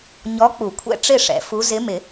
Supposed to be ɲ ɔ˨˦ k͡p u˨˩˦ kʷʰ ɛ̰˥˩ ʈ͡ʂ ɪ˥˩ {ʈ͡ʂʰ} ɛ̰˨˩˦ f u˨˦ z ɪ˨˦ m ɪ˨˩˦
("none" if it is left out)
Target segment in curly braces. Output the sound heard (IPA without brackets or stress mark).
ʂ